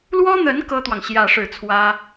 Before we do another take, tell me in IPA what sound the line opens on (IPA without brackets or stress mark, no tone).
l